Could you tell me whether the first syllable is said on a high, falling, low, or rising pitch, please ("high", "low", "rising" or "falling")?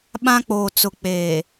high